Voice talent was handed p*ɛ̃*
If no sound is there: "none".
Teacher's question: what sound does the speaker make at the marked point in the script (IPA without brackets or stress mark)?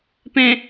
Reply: ɛ̃